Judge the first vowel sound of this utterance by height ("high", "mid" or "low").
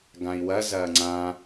low